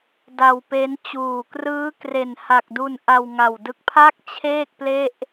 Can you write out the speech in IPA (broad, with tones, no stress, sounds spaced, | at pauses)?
d a˧ w p e˦˥ n t͡ɕ uː˨˩ k r ɯː˦˥ k r e˨˩ n h a˨˩ k̚ d u˧ n ʔ a˧ w ŋ a˨˩ w d ɯ˦˥ k̚ pʰ a˥˩ k̚ t͡ɕʰ eː˥˩ k̚ p l e˥˩ ʔ